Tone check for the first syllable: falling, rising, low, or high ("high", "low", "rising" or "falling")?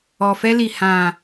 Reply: low